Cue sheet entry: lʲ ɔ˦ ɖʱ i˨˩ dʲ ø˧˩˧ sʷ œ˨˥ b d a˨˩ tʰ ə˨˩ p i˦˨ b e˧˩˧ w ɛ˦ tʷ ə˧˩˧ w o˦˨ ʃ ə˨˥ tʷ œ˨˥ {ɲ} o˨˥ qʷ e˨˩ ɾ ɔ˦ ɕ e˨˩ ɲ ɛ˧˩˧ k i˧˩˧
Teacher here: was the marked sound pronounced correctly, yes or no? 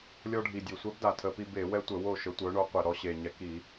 no